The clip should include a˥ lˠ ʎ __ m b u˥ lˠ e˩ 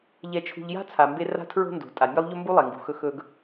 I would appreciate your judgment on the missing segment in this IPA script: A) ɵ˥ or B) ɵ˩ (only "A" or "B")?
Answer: A